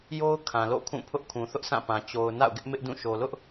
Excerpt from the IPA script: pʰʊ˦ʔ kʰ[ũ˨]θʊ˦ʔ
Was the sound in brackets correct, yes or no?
yes